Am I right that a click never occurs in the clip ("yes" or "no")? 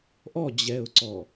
no